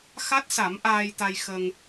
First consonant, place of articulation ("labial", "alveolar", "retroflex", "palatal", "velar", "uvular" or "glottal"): velar